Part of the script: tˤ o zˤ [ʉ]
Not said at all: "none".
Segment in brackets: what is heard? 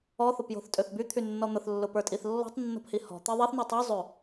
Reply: ø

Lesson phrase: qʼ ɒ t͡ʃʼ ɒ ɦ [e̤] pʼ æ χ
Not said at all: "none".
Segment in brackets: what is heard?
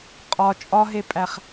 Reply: e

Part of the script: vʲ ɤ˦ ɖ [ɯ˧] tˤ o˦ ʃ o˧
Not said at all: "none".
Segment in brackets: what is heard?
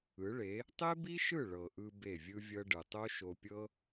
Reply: ɯ˨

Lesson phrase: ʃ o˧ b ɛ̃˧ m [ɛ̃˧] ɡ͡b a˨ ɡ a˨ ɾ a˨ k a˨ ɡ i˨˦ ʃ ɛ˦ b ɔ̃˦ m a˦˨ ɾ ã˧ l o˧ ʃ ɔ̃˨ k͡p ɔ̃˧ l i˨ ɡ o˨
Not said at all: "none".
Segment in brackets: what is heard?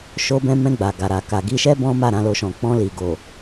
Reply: ɛ̃˧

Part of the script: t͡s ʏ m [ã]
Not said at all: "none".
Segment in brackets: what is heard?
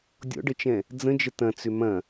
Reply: ɐ̃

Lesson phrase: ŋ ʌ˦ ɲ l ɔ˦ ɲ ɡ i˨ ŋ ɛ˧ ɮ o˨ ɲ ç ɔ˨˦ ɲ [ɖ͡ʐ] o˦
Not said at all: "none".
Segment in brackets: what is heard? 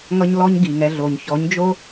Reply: d͡ʒ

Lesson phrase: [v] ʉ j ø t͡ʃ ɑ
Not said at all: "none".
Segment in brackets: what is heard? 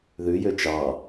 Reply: ð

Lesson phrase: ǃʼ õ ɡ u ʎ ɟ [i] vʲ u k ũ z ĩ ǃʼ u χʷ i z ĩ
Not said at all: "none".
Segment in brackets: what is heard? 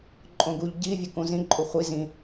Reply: i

